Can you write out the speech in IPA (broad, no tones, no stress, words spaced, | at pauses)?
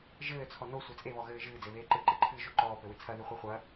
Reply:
ʒɘːt͡sʰɔ nosʷe t͡sʼeβɔɣɘː ʒɨːd͡zeβeː ǃɨǃɨǃʰɨːʒo ǃɔːpɘwɨ t͡sʰɐðɨχʷe χʷɐ